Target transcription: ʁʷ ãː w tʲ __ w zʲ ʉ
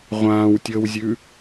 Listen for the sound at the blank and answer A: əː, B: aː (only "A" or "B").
A